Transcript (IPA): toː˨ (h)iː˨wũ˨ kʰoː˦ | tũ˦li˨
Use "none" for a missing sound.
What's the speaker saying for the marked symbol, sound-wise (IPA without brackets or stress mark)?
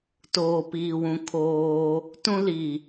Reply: p